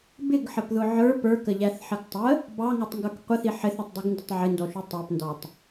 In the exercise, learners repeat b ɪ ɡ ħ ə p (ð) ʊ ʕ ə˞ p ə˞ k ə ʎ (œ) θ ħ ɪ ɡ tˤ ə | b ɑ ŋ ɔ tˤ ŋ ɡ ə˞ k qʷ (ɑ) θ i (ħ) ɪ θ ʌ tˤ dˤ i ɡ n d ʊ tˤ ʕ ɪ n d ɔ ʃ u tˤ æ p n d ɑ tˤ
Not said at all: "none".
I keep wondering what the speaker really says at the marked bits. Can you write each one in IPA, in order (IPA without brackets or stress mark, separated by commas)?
ð, æ, ə, ħ